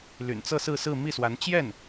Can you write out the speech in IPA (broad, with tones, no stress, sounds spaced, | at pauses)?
l y̰˨˩ n t͡s ɤ˥˧ s ɹ̩˥˧ s ɹ̩˥˧ m i˥˩ s w a˧˥ n t͡ɕ j ɛ˥˩ n